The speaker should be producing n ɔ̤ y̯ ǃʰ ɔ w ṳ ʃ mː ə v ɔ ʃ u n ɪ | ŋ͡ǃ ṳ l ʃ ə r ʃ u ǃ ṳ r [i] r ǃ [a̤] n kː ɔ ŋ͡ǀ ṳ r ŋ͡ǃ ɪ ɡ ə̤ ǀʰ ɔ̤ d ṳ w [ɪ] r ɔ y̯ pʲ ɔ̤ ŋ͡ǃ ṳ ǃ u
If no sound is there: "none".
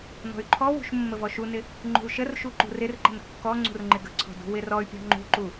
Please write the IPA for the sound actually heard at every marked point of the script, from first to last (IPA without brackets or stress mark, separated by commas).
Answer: ɪ, ə̤, ɪ